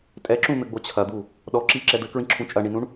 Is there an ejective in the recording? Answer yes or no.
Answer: yes